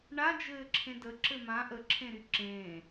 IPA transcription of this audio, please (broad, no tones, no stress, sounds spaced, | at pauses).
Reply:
ɳ a d͡ʒ ɘː ǁʰ ẽ d ə ǁ ɘ m ã ʔ ə ǁʰ ẽ ɾ y ǁ ẽː